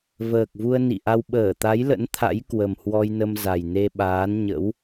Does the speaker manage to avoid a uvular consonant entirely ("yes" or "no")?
yes